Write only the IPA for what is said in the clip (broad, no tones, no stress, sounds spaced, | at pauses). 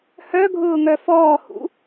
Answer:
h œ ɡʱ ʊː ŋ œ f ɔː h ṵ